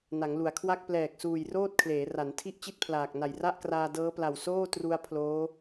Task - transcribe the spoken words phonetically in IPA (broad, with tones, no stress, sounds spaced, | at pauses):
n a˩˦ ŋ l u˩˦ a̯ kʰ w a˥˩ k̚ p l ɛː˨˩ k̚ s uː˨˩ j r oː˥˩ t̚ kʰ l eː˩˦ r a˩˦ n tʰ i˥˩ ʔ t͡ɕ i˥˩ t̚ pʰ l aː˨˩ k̚ n a˨˩ j r a˥˩ ʔ k r aː˧ d ɤː˦˥ p l a˨˩ w s oː˥˩ t r u˧ a̯ pʰ l oː˦˥